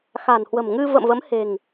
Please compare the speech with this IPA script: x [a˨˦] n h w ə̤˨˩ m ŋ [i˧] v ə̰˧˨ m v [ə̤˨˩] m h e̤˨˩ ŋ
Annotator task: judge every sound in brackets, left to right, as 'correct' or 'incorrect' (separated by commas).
incorrect, incorrect, incorrect